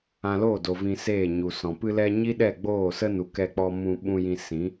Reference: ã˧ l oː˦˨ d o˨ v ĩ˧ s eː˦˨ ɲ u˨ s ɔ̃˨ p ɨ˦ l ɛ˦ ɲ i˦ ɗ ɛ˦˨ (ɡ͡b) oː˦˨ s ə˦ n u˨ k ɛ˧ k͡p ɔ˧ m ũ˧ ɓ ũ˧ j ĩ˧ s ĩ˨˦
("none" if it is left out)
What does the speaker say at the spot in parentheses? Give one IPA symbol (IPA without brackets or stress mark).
ɡ͡b